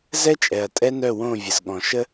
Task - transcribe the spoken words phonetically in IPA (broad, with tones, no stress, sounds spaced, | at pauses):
z ɛ˦ t͡ʃʼ ɛ˨ ɐ̯ tʼ ɛ˦ n œ˦˨ w õ˦˨ vʲ ə˨ z ɠ ɔ̃˨ ʃ ə˦